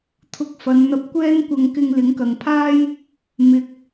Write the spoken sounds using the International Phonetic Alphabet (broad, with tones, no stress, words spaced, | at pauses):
t̪ʰʊ˧k̚fɐ˨˧n n̪ɐ˧p̚kʷɛː˥nkʷɐ˧ŋ kɪ˧ŋlɪ˨˥ŋkɐ˨ŋpʰaː˥j | mɪ˨˥k̚